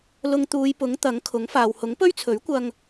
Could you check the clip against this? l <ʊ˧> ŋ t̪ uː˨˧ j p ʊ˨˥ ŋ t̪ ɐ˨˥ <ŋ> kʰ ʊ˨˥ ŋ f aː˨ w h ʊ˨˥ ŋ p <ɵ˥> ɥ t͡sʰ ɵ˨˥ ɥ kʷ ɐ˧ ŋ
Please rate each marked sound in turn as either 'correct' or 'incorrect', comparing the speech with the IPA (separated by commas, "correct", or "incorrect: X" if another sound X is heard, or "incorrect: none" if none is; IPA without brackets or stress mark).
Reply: correct, correct, correct